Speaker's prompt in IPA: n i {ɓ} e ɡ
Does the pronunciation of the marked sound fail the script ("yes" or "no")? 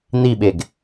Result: no